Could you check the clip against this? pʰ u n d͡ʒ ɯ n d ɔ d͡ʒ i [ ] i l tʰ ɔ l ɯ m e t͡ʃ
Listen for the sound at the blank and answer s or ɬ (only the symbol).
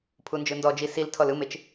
s